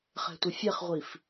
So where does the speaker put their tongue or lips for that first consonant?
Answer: uvula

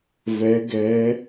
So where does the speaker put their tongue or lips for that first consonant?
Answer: lips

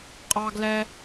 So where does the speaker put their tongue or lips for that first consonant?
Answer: uvula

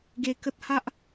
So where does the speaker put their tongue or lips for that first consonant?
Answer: velum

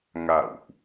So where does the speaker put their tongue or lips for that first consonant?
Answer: velum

